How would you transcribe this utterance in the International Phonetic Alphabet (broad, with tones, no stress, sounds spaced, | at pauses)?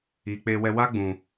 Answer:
iː˨ k͡p eː˧ w ɛ˧ w a˦ ɡ͡b ũ˨